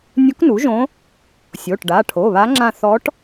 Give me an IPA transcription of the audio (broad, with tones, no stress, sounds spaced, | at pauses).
nʲ u˧˥ k n u˩˥ ʒ õ˧˥ | sʲ o˩˧˩ ʈ ɖ a˩˧˩ ʈʰ o˩˧˩ β a˧˥ ŋ͡ǁ ã˦˨ θ ɔ˧˥ ʈ